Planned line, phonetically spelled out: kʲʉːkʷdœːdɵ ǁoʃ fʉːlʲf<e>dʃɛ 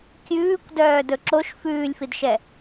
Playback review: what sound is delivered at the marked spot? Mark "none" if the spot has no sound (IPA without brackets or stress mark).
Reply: i